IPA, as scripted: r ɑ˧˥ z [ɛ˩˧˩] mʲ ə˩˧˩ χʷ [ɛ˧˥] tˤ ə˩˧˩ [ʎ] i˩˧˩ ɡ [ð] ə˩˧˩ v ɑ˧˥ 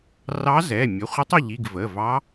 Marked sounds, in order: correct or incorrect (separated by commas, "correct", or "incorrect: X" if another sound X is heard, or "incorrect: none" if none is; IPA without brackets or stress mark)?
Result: correct, incorrect: ɪ˧˥, correct, incorrect: v